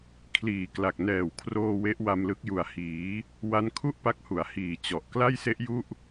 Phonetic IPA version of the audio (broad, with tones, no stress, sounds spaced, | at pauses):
kʰ l iː˨˩ k l a˨˩ k̚ n ɛː˨˩ w kʰ r oː˧ w e˦˥ ʔ w a˧ m l ɯ˦˥ k̚ j u˨˩ a̯ h iː˩˦ | w a˦˥ n kʰ u˥˩ ʔ p a˦˥ k̚ h u˩˦ a̯ h iː˨˩ t͡ɕ ɔ˨˩ ʔ k l a˥˩ j s e˦˥ ʔ j u˥˩ ʔ